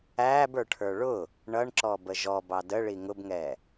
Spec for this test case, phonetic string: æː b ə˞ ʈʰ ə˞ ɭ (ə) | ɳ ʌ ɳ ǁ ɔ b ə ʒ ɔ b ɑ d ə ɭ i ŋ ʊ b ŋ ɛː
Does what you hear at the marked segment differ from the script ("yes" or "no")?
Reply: yes